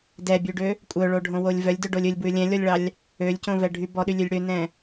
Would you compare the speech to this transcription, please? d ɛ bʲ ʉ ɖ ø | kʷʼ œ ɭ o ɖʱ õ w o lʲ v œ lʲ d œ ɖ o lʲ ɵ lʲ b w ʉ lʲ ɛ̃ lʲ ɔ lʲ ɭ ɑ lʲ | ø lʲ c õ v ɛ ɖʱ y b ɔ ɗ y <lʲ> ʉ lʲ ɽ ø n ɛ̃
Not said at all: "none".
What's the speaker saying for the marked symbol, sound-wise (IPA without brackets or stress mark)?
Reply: lʲ